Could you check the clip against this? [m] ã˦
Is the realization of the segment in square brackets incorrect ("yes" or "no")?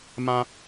no